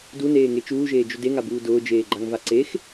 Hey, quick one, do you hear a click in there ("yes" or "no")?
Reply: yes